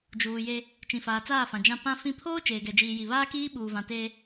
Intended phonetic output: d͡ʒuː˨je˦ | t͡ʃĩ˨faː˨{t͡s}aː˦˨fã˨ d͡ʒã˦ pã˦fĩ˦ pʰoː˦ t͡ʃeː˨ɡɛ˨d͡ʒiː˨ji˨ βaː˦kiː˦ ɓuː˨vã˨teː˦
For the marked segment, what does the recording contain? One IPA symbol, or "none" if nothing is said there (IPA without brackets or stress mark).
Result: t͡s